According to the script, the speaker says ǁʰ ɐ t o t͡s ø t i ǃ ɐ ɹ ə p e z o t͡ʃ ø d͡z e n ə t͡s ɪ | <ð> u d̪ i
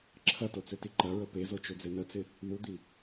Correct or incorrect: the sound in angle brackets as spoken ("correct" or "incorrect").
correct